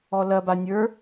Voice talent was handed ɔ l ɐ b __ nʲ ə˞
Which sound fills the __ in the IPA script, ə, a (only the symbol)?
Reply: a